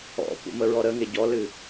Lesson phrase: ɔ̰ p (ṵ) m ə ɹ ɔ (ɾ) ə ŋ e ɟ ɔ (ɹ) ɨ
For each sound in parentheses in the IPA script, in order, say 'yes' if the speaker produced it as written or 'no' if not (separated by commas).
yes, yes, no